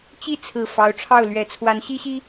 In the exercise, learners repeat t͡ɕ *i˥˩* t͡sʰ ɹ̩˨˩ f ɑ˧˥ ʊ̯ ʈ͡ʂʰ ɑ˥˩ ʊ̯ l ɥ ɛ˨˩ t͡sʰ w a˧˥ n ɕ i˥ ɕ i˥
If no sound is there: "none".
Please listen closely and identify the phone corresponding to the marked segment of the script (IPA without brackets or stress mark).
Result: i˥˩